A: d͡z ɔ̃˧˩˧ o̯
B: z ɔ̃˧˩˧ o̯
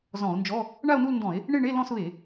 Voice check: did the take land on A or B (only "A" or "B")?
B